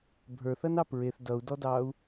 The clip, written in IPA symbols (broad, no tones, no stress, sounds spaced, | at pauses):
bʱ ə˞ θ ɐ n ɑ p ɹ e θ d ʌ u̯ d ɔ d ɑ u̯